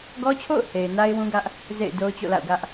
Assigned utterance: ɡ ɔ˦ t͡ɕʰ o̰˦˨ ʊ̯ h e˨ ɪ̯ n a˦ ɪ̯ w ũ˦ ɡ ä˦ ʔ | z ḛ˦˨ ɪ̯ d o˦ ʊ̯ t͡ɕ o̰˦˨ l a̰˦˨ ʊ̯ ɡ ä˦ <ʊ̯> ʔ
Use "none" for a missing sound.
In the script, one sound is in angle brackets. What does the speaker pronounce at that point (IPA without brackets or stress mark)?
none